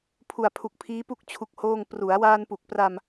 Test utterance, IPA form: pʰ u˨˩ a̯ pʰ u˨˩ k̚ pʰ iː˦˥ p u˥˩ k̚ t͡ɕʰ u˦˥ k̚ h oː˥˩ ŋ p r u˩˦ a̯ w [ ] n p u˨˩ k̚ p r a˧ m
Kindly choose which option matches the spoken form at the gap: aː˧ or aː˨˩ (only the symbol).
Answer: aː˧